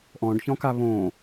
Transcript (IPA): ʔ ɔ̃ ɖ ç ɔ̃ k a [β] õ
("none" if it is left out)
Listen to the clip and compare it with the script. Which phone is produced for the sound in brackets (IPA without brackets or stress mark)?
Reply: β